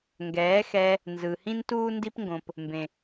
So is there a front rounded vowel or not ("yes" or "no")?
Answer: no